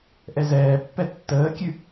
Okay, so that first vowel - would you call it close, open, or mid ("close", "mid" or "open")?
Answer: mid